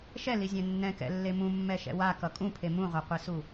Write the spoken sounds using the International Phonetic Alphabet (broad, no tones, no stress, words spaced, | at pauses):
ʃɛlizʲɛ̃ nːɛ̃kɛ̰lːe mũmːɛʃɛ̰ wakʌ kʼũpʰe mũʁʷaqʷesu